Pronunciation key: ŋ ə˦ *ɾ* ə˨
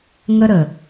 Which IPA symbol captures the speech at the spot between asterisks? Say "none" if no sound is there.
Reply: ɾ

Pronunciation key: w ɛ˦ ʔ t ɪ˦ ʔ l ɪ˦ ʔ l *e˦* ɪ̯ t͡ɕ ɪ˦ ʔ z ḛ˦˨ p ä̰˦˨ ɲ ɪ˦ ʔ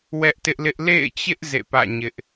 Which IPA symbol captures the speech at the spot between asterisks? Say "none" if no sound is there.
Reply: ḛ˦˨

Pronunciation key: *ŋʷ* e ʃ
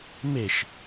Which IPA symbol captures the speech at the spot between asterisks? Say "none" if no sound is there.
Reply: m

